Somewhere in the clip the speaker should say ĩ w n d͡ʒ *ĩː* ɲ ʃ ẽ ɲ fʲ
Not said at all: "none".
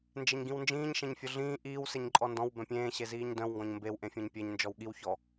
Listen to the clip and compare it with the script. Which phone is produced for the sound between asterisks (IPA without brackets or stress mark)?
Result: ĩː